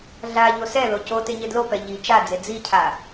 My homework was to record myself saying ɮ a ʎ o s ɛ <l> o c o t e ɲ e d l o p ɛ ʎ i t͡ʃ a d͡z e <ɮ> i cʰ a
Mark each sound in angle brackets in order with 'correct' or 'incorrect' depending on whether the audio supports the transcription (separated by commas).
correct, incorrect